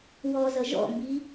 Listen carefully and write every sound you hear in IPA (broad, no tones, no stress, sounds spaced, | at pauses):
w ɔ z ʌ ʒ ɔ̰ m b i